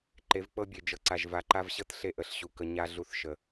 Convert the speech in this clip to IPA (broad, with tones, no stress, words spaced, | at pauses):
ǃe˨˦vk͡pɤ˦bʲe˨ d͡ʒɤ˨ǀa˨ʒ va˨ǃa˦vɕɤ˦t ɬe˦ʔə˨ɬɕu˨ kə˨ ɲa˦ ɮu˦θʃə˨